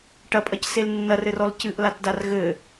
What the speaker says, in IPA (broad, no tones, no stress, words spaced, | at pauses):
ʈɐpʼɐcsel nːɐrɘrɔl cɨʔlatdar ɣɘ